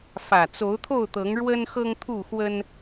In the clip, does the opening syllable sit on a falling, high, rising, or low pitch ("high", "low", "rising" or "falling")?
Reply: low